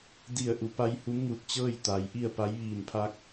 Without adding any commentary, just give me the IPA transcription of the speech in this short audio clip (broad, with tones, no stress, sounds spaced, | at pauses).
d i˧˩ ə̯ ʔ u˩˧ p a˧˥ j h u˧˥ m ŋ u˧˩ t̚ t͡ɕ ɤː˥˨ j t̪ a˩ j ʔ i˥˨ ə̯ p a˧˥ j ʋ iː˧˩ n pʰ a˧ k̚